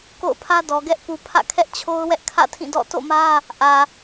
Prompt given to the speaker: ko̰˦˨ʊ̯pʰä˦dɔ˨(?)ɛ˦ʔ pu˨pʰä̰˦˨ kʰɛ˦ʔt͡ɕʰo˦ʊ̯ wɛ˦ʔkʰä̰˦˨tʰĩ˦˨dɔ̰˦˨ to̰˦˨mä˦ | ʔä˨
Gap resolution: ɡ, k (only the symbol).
ɡ